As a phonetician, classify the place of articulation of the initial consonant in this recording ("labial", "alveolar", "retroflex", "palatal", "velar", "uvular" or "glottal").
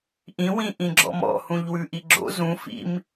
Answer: glottal